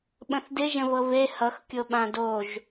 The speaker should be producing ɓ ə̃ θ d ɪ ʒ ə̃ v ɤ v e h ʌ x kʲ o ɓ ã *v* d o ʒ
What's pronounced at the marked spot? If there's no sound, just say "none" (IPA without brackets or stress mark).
none